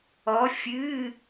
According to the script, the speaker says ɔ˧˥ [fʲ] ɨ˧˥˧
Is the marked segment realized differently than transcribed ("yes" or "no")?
no